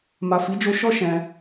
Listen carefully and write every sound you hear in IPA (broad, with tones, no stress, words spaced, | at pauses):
ma˨fi˨˦d͡ʒo˧ ʃɔ˦ ʃɛ̃˧